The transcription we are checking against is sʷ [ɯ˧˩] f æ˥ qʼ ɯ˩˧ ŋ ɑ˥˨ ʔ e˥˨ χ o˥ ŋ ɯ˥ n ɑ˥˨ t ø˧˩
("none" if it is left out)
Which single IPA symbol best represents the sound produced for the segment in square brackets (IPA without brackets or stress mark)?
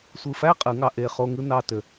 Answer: ɯ˧˩